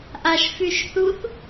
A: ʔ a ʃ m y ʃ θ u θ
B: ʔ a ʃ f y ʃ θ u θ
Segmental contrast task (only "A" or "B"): B